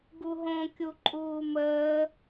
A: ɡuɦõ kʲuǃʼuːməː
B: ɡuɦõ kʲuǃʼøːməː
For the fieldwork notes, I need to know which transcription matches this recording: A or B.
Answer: A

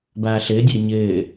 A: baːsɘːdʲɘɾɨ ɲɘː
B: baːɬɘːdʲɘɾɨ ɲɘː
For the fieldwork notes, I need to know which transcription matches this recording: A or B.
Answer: B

